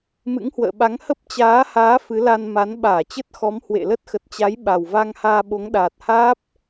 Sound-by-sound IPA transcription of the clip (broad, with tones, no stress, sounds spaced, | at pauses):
m ɨ̰˧˥ ŋ h w ə̰ː˧˨ ɓ a˨˦ ŋ h ə˦˥ p̚ t͡ɕ aː˨˦ h aː˨˦ f ɨ˨˦ l a˧ n m a˨˦ n ɓ aː˧˩ t͡ɕ ə˦˥ t̚ x ɔ˨˦ m h w ḛ˧˨ l ə˦˥ t̚ x ə˨˩ t̚ t͡ɕ a˨˦ j ɓ a˨˩ w v a˧ ŋ h aː˧ ɓ o˨˦ ŋ ɗ aː˨˩ t̚ h aː˦˥ p̚